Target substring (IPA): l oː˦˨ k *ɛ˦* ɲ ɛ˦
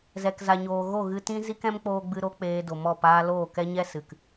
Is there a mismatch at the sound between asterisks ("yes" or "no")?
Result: no